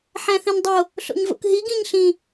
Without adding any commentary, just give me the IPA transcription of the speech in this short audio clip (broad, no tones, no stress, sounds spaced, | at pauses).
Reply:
ħ æ̃ θ ĩ n dˤ o | ɬ o̰ ɲ v o̰ k ɦ i ɡ ĩ ɲ ɬ ĩ